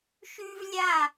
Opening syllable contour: high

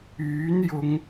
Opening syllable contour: rising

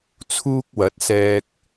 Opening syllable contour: high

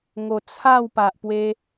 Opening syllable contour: low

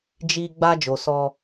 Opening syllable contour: low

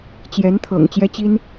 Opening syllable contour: rising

